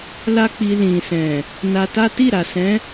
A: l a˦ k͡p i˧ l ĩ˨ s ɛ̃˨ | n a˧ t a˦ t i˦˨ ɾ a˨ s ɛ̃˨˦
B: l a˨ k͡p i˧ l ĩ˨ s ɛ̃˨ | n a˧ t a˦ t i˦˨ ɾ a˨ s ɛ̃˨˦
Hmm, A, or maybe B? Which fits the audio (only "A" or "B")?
A